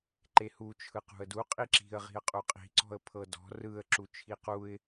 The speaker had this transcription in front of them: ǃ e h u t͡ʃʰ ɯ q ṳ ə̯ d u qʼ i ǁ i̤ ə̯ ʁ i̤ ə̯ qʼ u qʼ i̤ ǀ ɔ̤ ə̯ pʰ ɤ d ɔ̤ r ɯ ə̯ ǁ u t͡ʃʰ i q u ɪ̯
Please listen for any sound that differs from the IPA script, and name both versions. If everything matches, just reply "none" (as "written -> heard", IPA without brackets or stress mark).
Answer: none